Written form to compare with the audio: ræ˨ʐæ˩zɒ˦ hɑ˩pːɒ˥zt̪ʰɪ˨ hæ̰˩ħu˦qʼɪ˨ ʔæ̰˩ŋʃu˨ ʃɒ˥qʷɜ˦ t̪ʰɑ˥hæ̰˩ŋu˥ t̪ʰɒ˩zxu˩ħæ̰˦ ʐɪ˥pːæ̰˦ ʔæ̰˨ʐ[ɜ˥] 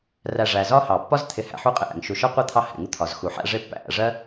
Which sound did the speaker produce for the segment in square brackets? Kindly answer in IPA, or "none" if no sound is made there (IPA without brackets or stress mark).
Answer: ɜ˦